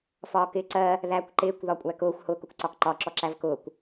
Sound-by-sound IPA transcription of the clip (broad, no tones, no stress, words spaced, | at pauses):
fɒːkɪːǀɜ | ðækʷ ǃɪːkʷ ðɒkʷʼækʊːxʷ hʊːkʊkʷǀɒkǃɒ ǁɔǁævkʊːkʷ